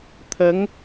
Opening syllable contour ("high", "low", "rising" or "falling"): rising